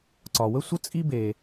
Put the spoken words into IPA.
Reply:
ǀ ɒ˨ w ə˥ sʷ ə˥ t͡sʼ i˥ b e˨

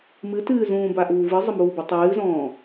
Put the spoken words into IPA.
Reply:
m ɨ t ɨː z ũː b a ʔ uː v ɨ zˤ ə m uː b ə tˤ ɨː z ɔ̃ː

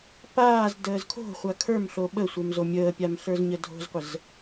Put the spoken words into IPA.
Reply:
p aː z d əː z kʰ o̤ χʷ a kʰ ə˞ m ɬ o ɓ ə sʷ ə˞ m z o mʲ əː pʲ a m ɬ ə˞ z ɲ ə dʱ o̤ z qʷ ə z

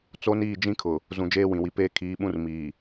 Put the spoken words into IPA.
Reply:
t͡s o˦ n iː˦˨ d͡ʒ ĩ˦ kʰ ʊ˨ | z ũ˨ d͡ʒ eː˦ w ĩ˨ w i˨ p eː˦ kʰ iː˨˦ ɓ ũ˦ r m iː˨

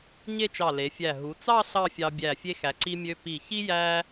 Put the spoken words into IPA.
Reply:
ɲ e˥˧ t͡ʃ ɑ˧˩ l e˩˧ fʲ æ˧˩ ɦ u˩˧ t͡s ɑ˥˧ ɬ ɑ˥˧ fʲ ɑ˧ bʲ æ˧˩ fʲ e˧ x æ˩˧ ǀ i˧ mʲ ø˧ p i˧˩ ç i˥ j æ˥

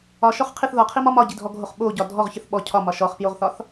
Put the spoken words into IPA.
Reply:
ɒ ʃ ɔ χ qʰ i θ ð ɒ qʰ i m ɒ m ɒ ɟ i dʱ ɔ ɡʱ o χ ɓ o ɟ ɒ dʱ ɔ ʁ ç ə θ ɓ ɔ cʰ ɒ m ɒ ʃ ɔ χ p j o ʁ θ ɒ θ

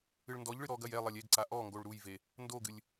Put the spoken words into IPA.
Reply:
ɨ ɭ n d ɔ ʎ ɭ ɨ ɾ ɔ ɡ ɐ j ɛ lˠ ɐ lʲ e ɡ ǀ a ʔ ɔ ŋ ɡ o ɭ ɾ u j v e | n d o ɡ ɨ lʲ

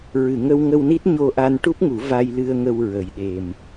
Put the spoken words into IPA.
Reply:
ɹ ɨ˨˩˨ ŋ ə˧ w ŋ ə˧ w n i˦˥ t̚ ɲ o˧ ʔ a˧ n ʈ u˦˥ p̚ ŋ u˨˩˦ v a˧ j l ɨ˧ ə̯ ŋ ə˧ w ɹ ə˨˩ j ɗ e˨˩ m

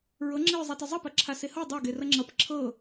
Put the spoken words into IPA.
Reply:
ɹ ɤ ŋ͡ǁ e ɹ zˤ a t ɐ zˤ ɐ p ɐ ǁʰ a s e h ɤ dˤ a ɡ e r ɐ ŋ͡ǁ ʌ p ǁʰ ɤ

